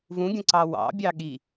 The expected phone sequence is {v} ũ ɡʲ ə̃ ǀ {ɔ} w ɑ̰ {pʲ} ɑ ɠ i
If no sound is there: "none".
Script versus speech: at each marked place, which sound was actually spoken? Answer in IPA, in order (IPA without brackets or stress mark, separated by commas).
v, ɑ, bʲ